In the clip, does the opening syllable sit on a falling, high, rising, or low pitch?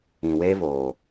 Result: low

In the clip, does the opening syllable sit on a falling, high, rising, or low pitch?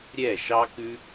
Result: falling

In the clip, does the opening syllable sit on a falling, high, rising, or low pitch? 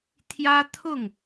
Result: high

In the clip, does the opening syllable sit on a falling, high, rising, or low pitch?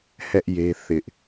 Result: high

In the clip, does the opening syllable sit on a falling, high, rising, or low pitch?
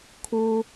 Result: low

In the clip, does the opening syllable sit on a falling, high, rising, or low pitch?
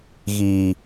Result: low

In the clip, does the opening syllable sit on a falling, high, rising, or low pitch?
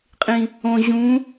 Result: low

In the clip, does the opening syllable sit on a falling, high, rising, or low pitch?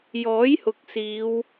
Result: rising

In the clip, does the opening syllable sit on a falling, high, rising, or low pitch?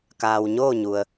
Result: low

